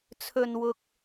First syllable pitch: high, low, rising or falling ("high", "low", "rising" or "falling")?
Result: low